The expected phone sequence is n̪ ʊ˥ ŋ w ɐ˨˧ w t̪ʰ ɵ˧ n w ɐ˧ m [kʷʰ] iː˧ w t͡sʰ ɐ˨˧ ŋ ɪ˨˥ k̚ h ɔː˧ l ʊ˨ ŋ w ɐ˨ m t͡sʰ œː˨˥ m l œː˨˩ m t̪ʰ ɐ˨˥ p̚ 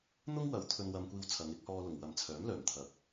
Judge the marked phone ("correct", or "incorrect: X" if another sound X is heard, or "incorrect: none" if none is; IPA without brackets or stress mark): incorrect: kʷ